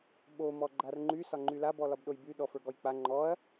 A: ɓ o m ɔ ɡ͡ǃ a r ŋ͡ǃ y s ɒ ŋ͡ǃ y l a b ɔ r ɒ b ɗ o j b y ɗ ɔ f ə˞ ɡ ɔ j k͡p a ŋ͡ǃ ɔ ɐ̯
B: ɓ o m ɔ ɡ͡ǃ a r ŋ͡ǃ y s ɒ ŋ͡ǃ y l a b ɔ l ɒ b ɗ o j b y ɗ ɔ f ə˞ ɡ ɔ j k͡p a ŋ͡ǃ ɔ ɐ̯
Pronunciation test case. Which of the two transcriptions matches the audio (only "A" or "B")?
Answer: B